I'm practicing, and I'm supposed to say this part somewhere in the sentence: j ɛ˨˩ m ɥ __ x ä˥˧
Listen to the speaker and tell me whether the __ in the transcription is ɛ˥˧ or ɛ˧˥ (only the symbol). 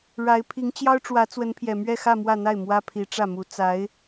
ɛ˥˧